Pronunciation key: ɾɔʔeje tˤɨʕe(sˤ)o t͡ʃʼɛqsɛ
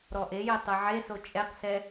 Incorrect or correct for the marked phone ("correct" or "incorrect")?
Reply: incorrect